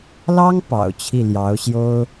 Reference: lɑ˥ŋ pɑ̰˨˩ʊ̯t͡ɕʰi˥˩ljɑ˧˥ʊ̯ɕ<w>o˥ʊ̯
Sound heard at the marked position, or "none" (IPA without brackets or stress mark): j